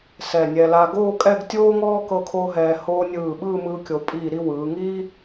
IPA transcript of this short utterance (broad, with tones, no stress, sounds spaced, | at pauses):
s ɛ˧˩ nʲ ɛ˧ l a˧ ɡ oː˥˧ kʼ ɛ˥˧ ɡ tʲ oː˥ ŋ ɔː˥ k ɤ˥˧ kʰ oː˥ ɦ ɛː˧ h oː˧ nʲ ɯː˧˩ ɓ ɯː˥˧ m ɯː˧ kʲ o˩˧ pʼ iː˧˩ ɾ i˥˧ w ɯː˩˧ ŋ iː˥